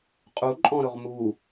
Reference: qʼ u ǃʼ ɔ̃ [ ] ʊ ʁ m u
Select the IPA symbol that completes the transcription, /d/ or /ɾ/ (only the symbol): ɾ